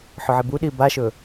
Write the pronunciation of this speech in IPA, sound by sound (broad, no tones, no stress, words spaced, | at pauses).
ħɵʕebuɗiː baʃɵ